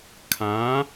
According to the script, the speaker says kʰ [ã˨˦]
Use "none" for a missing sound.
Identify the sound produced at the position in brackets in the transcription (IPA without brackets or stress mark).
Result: ã˨˦